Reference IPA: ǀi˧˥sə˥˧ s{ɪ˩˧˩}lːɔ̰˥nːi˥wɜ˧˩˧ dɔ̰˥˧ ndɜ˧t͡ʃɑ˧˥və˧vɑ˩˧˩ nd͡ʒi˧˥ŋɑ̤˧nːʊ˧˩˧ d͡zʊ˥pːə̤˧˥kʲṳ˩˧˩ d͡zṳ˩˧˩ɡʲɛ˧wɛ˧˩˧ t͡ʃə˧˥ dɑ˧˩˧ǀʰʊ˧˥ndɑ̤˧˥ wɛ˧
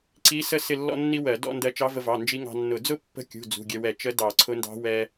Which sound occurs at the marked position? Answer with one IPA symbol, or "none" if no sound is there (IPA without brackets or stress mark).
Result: ɪ˥˧